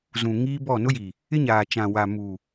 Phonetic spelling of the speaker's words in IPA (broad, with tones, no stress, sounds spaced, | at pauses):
z ũ˨ ŋ iː˦ b ɔ˦˨ n ʊ˦ j iː˨ | ɪ˦ ɲ aː˨ t͡ʃ ã˨ w a˨ m uː˨